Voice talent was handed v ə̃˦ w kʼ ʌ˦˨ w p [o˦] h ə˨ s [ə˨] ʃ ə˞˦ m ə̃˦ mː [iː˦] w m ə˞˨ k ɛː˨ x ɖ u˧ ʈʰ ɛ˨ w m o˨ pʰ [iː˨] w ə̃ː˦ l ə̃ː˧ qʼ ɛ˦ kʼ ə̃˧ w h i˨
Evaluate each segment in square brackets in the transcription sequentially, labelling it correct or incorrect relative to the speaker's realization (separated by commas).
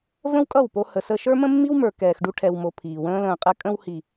incorrect, incorrect, incorrect, correct